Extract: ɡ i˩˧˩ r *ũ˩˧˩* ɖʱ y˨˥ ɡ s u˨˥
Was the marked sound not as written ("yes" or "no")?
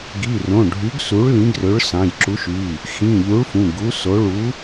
yes